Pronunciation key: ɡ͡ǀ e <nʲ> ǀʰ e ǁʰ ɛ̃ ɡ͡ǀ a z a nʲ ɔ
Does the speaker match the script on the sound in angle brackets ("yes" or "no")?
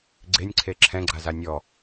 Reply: yes